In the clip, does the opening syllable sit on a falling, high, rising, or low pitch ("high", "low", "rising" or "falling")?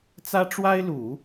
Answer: high